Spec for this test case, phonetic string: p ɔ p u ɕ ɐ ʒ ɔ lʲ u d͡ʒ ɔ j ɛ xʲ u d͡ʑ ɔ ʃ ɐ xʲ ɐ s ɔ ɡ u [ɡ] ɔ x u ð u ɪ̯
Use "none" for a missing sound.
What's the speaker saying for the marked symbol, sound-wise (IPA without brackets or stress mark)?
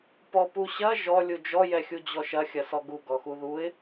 ɡ